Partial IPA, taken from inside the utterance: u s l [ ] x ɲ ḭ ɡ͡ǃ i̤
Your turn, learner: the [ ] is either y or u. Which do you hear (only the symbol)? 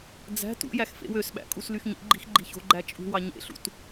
y